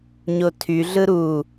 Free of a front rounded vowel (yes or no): no